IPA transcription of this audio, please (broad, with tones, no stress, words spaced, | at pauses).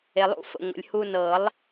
e˩lˠṵ˨˩˦fə̰˩ ŋʷə̰˩lʲhu˧nɤ˨˩˦lˠ